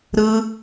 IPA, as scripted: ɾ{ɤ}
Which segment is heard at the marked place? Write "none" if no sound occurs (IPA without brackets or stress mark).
ɯ